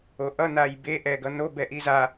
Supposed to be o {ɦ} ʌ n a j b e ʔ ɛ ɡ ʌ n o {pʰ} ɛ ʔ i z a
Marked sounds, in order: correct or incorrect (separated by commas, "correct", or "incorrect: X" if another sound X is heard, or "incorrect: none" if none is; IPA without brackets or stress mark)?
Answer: incorrect: ʔ, incorrect: b